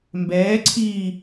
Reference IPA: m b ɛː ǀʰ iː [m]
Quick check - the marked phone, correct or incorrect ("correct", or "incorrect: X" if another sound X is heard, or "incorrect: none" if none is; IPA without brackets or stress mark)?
incorrect: none